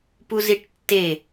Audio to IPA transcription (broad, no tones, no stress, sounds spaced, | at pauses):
p u z i ʈ tː e